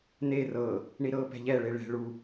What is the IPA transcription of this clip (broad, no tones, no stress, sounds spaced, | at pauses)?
n e r ɤ | ɳ i ɾ ɤ p ɛ̤ ʎ ɛ ɭ e ɭ ɛ̤ ɭ u